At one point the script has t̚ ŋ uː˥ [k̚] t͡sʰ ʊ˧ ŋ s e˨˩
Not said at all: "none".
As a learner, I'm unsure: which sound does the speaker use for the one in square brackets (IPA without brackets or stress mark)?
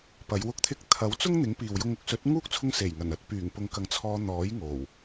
k̚